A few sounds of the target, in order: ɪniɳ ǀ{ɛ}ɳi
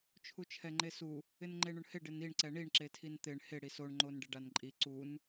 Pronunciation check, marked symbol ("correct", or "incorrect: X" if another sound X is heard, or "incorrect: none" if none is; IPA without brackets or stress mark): correct